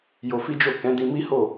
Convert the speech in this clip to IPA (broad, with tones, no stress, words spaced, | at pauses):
jo˧fi˦d͡ʒo˦˨ kɛ̃˨˦dĩ˧mi˦ho˦˨